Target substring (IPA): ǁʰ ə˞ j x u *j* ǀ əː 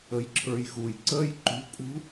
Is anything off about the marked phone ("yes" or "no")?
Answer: no